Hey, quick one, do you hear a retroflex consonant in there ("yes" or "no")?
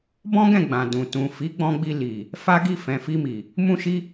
no